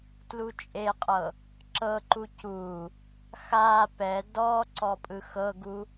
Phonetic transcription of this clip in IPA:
tlut͡ʃʼeqʼɤ | ǁɤǃu cu | xa pɛ dɔ ǀɔpʼɯxɤɡu

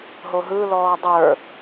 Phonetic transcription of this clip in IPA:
ɦoɦɯlɔː dˤə˞

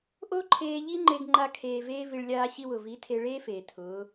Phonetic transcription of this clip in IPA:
ʔo˦ǃʰeː˧ ʎi˦ŋ͡ǃe˧ɡŋ͡ǃa˧kʰeː˨ veː˦vi˧ɭ lʲaː˧ɕi˧wʊ˨vi˨˦ tʰe˧ ɭeː˦feː˨ tʰʊː˨˦

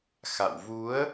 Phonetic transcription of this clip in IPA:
xa̰˧˨w vu˨˦ə̯

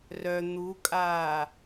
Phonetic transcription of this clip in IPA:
rœ n̪ukʼaː

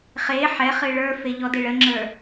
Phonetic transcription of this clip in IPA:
χe ħɛχɨ ɭə˞fe ʎɔdeɭəŋ͡ǁə˞

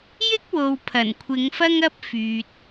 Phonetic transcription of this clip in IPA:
jɪ˥k̚wo˨w pʰɐ˨˩nkʷʰɪ˨˧ŋfɐ˥ŋ ɐ˥p̚fyː˨t̚

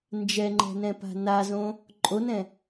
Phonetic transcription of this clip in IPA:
nd͡ʒɛŋ͡ǃɛ̤nɛ̃pa̤ nazõ | ǃʼonɛ̃

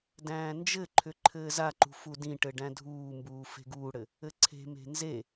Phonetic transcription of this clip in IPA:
dæ̃ːnd͡ʒɘǃʰʏ ǃʰɘːzaǃṳ fudĩʈɘ ɖæ̃dʱuːmbuː fe̤ɡuːɽɘ | ɘǀʰe̤me̤ nze

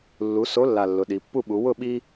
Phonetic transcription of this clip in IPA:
lːu˩˧ so˨˥lːa˨˩ lːʊ˩˧ɗi˩˧ pːu˦˨ɓu˩˧ wʊ˦˨ ɓi˦

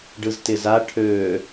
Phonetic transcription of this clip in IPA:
ɖɯztɪza ʈʰøː

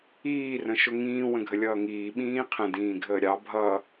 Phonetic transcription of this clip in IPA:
iːrə̃ ʃʊŋĩː wə̃ɡʱəlʲʌːŋiː ɓĩːqʰə̃ dĩːɡʱəːɾʲɑ bʱʌ

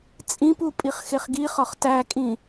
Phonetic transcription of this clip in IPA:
t͡sʼĩpu pʼiχxeχɡiχɒχ tækʼĩ

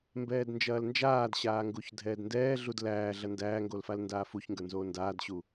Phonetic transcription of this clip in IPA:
mbɛːdnd͡ʒɐːlnd͡ʒaːd ɕaːŋɡuçdʱɛːdndɛː ɮudlæːɮɐ ndæːŋɡolfal ndaːfuçŋɡə˞nzoː ndaːdɕu

